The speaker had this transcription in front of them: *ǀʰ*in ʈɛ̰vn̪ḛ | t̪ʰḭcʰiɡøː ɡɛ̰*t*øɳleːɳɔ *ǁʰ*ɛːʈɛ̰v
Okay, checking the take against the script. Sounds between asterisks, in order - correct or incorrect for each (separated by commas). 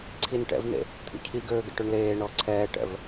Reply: correct, incorrect, incorrect